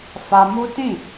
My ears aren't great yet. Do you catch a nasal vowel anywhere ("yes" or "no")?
yes